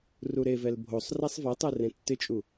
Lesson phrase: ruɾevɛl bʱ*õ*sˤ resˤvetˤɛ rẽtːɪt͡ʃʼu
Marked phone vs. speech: incorrect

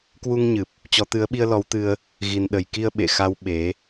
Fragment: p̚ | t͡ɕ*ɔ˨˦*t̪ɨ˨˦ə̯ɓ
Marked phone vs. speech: correct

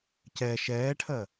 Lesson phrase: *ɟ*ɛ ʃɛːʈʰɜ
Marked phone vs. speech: incorrect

